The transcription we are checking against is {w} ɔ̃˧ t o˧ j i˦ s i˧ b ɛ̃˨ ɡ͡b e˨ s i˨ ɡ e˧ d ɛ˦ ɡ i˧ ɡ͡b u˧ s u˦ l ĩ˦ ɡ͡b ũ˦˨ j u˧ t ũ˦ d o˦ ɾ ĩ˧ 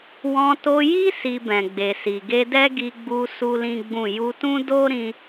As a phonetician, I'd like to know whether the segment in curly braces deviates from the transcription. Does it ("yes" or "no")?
no